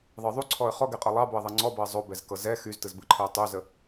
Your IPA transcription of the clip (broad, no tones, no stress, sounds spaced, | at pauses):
ðˤ ɯ ðˤ u ǀʰ ɔ ə̯ χ ɔ ɡ ɛ qʼ ɤ lˠ ɑ b o ə̯ ðˤ ɤ ŋ͡ǀ ɔ b ɤ ə̯ zˤ o b ɛ z k ɤ z ɛ x y z t ɯ z b ɯ ǃʰ ɯ ə̯ tˤ y z ə